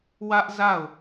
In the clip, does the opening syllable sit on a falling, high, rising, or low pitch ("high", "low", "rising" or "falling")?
high